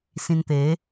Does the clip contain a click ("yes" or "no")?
no